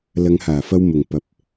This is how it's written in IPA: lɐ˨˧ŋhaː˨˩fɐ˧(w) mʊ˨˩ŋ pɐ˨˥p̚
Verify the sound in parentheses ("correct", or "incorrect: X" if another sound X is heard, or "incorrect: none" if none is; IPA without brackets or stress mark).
correct